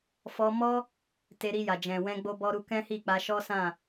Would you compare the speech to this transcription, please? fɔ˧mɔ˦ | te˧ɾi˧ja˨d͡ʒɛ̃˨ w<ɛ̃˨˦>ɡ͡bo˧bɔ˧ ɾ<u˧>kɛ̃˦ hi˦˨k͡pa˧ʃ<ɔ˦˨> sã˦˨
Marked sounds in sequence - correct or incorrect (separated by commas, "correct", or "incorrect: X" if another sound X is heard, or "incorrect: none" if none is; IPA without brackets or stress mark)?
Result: incorrect: ɛ̃˧, correct, incorrect: ɔ˦